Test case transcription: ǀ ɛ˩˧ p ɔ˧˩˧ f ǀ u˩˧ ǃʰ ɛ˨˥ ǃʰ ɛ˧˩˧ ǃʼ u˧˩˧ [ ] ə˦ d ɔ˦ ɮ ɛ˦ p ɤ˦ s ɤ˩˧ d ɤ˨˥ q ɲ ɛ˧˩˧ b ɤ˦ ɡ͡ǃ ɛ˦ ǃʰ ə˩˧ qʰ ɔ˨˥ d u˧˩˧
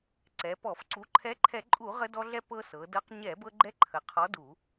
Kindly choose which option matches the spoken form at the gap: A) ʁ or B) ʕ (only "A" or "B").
A